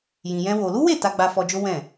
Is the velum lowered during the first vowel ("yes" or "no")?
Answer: yes